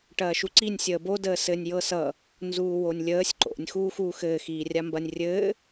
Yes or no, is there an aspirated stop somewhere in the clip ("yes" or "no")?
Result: no